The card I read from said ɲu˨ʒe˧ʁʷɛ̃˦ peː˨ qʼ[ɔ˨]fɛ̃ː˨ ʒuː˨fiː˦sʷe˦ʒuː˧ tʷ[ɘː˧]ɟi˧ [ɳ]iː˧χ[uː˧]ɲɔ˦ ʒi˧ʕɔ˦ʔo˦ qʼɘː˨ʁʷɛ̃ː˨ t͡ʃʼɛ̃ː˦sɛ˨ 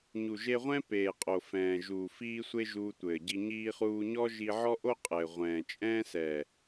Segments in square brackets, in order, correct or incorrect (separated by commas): incorrect, incorrect, incorrect, correct